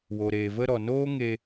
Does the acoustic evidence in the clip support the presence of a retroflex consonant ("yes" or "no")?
no